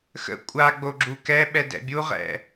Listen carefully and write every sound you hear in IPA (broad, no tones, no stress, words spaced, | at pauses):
xə̰ kʷʼa ɡ͡boɡ͡ǁukɛɓɛ dɛ̰bʲuʁɛ̰